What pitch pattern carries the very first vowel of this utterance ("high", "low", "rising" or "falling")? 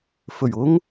low